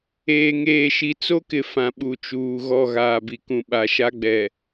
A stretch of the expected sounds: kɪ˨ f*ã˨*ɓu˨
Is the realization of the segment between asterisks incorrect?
no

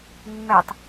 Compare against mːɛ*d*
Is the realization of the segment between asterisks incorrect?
yes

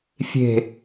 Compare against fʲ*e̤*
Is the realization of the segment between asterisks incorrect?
no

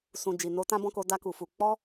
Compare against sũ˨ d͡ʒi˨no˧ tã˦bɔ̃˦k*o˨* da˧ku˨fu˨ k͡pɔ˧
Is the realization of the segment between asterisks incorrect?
yes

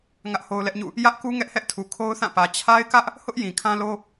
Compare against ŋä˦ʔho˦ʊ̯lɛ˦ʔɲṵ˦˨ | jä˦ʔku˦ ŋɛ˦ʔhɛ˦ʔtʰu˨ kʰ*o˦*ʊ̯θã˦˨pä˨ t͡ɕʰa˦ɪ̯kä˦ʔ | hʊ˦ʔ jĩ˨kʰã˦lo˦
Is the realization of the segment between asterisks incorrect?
no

